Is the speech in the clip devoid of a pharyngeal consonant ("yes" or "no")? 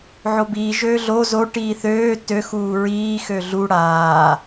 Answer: no